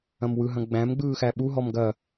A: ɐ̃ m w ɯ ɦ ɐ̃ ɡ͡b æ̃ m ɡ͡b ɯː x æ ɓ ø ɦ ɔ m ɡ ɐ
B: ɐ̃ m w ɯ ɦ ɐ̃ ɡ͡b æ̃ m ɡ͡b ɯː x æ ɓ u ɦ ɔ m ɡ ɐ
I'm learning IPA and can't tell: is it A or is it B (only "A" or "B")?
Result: B